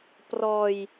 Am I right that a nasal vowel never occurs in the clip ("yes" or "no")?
yes